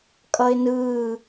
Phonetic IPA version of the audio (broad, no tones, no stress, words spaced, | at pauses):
kʼʌɪ̯nɯː